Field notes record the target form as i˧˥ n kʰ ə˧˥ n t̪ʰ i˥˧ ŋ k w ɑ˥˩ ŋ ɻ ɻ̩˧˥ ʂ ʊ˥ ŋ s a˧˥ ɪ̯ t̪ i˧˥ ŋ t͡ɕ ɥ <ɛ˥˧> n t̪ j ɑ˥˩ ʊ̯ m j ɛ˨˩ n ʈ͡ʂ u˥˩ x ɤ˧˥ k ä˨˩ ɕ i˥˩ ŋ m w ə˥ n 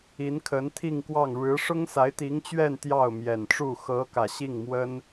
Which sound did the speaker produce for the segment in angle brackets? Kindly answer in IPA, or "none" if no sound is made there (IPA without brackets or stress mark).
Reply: ɛ˥˧